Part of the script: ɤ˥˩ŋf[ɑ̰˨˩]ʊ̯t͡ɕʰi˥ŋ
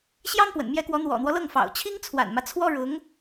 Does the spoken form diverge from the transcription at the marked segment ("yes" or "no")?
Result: no